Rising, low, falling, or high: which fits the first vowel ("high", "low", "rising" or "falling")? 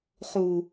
low